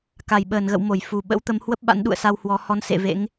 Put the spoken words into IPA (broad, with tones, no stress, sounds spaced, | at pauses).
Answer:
k a˧˩ j ɓ əː˧˩ n ɣ ə̰˧˨ w m o˧˩ j f u˧˩ ɓ ə̰˧˥ w t̪ ə˨˦ m h w ə˦˥ p̚ ɓ a̰˧˥ n ɗ ṵ˧˨ ə̯ s a˧ w h w ɔ˨˦ h ɔ˧ n s ḛ˧˨ v ḛ˧˥ ŋ